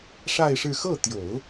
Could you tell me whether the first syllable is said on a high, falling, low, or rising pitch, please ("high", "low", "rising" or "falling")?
falling